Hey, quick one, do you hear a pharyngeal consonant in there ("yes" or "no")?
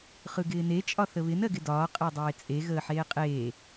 yes